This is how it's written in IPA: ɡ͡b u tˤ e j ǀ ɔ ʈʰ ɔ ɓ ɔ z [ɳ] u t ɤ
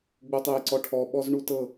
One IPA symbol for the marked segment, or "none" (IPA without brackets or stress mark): ɳ